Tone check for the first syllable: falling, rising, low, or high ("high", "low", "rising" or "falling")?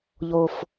high